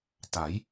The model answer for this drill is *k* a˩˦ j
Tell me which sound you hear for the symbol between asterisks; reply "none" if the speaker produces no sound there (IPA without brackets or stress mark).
t